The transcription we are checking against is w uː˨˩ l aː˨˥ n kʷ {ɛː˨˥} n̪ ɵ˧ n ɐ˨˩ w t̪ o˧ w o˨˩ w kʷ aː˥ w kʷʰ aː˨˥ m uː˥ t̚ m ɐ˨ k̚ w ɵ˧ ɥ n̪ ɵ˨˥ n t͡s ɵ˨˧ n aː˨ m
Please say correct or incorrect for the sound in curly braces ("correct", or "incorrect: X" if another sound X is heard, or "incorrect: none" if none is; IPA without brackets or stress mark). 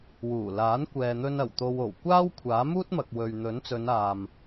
incorrect: ɛː˨